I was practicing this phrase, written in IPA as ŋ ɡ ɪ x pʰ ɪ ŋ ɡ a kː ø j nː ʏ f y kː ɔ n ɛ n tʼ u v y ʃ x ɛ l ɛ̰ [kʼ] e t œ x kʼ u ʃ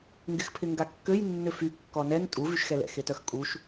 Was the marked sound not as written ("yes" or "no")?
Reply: yes